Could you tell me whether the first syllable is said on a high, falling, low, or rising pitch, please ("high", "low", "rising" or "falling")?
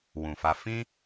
low